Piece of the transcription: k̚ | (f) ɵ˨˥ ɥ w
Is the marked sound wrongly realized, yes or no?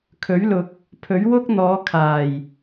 yes